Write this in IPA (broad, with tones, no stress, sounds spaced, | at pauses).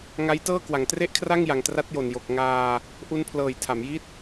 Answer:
ŋ a˦˥ j t ɤː˥˩ k w a˩˦ ŋ t r e˥˩ ʔ kʰ r a˥˩ ŋ j a˨˩ ŋ t r a˦˥ t̚ j o˨˩ n j o˨˩ k̚ ŋ aː˧ | ʔ u˦˥ n pʰ l ɤː˨˩ j tʰ a˩˦ m j i˥˩ t̚